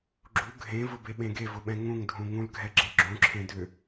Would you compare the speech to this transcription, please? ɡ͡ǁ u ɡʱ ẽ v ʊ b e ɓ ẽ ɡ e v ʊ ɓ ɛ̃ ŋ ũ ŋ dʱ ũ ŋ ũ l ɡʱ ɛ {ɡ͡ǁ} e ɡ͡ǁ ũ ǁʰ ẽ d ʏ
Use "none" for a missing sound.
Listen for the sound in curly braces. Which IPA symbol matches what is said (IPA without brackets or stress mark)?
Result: ɡ͡ǁ